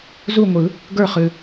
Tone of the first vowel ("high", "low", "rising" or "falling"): falling